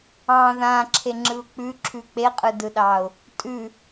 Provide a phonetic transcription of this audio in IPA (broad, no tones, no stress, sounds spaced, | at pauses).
ɑ̃ ð ã ǁʰ e ŋ͡ǁ ɯ ʊ̯ k͡p ʉ ǁʰ ʉ k͡p e qʼ ɯ d ɯ ɗ ɑ ʊ̯ | tʼ ʉ